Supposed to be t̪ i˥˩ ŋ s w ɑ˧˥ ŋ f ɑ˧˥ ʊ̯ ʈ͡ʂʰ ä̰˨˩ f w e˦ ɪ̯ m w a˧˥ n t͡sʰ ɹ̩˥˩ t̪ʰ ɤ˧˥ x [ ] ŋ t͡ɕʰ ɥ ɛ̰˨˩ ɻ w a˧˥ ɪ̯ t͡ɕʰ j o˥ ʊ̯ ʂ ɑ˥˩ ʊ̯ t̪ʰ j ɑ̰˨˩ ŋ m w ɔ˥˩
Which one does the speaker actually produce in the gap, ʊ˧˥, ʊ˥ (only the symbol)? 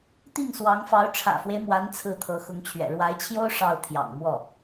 ʊ˧˥